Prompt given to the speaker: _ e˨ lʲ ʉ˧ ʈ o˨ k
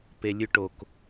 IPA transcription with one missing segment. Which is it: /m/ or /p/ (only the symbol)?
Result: p